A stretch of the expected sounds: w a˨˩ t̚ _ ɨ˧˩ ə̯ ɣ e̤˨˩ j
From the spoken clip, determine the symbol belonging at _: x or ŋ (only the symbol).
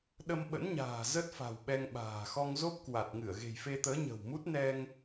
ŋ